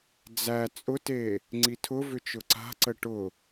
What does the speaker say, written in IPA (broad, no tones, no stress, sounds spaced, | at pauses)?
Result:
d͡z æ t͡sʼ ʊ t e | ŋ͡ǀ i tʰ ʊ v ʏ t͡ʃ ʊ ǀ a̤ ǀ ə ʈ ʊ